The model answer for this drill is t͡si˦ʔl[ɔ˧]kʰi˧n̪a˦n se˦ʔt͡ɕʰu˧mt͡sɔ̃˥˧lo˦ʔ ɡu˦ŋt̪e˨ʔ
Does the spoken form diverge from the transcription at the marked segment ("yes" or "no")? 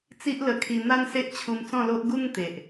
yes